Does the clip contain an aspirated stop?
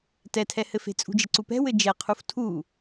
yes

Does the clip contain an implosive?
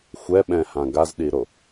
yes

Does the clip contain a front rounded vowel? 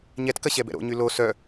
yes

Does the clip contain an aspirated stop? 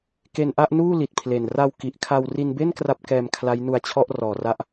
yes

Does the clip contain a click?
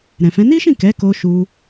no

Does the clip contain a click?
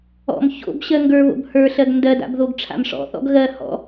no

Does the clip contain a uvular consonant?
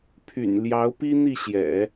no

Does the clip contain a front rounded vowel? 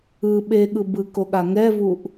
no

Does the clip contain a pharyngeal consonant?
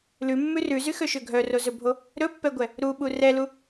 no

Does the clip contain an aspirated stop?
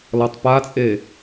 no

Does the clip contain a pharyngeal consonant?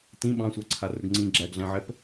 yes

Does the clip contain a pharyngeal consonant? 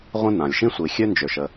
no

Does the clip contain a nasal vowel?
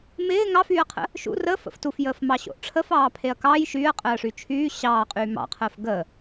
no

